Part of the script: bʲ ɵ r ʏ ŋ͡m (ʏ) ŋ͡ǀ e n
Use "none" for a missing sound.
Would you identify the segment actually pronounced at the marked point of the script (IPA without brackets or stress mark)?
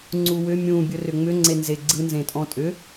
ʏ